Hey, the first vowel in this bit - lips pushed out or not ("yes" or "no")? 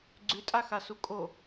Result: yes